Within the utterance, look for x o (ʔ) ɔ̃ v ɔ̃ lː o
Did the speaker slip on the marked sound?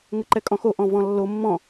no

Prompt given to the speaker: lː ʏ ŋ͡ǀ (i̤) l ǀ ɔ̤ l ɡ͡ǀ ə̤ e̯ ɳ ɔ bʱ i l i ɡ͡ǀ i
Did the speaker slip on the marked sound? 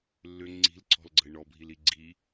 no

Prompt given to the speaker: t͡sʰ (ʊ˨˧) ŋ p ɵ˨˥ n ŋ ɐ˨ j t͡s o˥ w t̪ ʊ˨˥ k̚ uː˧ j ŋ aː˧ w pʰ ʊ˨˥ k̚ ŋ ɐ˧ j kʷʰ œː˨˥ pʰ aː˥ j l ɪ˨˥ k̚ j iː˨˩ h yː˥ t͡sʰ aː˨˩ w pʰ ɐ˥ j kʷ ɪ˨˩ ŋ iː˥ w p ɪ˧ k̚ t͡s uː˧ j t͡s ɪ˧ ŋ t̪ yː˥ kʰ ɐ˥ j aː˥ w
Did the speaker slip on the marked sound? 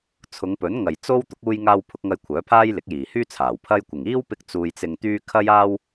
no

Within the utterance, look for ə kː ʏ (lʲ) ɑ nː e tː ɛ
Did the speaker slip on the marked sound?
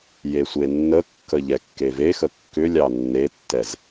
no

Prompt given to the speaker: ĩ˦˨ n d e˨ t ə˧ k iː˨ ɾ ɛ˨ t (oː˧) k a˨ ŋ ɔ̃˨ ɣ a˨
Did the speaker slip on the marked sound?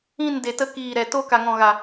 no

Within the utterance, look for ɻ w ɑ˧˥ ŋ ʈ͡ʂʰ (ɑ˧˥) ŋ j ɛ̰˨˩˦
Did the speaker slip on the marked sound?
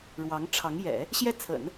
no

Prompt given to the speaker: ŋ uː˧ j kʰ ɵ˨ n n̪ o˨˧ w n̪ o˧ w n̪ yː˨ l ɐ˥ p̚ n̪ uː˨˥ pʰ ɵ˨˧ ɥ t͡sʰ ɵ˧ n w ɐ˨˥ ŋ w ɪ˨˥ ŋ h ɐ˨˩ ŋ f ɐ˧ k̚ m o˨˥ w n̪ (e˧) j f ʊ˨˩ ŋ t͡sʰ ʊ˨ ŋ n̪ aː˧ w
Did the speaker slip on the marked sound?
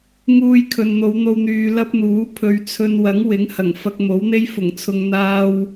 yes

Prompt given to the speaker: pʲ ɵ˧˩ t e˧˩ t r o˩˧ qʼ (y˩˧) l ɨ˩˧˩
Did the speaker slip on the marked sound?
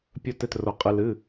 yes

